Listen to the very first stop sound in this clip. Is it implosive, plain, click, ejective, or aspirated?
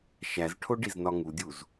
aspirated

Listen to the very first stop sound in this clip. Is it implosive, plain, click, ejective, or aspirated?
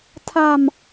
aspirated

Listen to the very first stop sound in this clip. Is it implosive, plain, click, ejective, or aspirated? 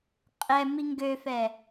ejective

